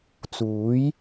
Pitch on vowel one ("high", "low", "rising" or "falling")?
rising